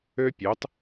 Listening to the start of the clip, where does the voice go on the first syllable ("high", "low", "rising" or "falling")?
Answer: high